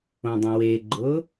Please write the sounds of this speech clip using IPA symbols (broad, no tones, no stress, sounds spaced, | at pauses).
õ dˤ ĩ w e ɡ͡ǃ ʊ